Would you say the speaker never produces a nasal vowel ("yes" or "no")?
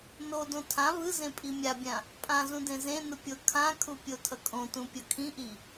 no